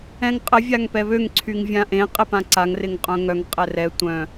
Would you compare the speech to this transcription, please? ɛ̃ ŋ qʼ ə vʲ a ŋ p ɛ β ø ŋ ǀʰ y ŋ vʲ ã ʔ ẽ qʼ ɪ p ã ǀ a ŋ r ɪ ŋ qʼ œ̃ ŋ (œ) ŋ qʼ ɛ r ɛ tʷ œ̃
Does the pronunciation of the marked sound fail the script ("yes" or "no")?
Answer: no